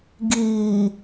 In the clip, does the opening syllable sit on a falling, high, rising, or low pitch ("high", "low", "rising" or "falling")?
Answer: low